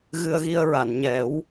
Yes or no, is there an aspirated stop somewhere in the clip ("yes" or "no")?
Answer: no